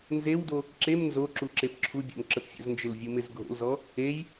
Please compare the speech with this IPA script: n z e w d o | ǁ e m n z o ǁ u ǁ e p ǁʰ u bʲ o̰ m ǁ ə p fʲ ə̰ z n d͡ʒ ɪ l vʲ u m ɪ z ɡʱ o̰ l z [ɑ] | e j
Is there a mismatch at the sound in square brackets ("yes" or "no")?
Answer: yes